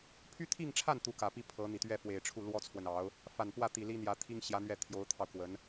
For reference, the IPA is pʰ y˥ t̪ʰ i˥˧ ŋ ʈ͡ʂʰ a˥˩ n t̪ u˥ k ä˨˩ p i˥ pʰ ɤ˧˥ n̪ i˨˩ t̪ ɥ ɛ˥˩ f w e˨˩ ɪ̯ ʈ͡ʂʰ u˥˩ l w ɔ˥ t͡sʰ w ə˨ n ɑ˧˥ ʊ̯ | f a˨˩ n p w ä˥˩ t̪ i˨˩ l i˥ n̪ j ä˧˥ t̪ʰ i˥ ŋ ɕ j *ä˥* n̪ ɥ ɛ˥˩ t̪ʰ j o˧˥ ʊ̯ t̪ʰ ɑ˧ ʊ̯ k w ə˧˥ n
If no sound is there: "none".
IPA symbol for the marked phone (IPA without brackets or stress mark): ä˧˥